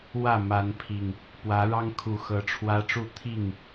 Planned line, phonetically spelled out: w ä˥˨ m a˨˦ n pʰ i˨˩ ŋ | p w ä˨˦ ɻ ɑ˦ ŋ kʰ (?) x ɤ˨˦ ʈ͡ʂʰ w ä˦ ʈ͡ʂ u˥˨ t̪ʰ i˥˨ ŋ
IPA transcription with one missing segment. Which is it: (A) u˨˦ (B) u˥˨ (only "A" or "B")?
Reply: A